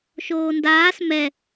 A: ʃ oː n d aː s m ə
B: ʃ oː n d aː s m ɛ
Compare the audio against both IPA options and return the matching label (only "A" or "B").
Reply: B